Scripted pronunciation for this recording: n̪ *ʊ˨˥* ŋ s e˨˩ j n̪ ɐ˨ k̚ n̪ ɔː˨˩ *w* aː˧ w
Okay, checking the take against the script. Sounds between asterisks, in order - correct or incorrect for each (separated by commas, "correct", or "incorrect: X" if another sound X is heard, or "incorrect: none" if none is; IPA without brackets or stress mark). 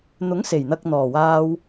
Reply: correct, correct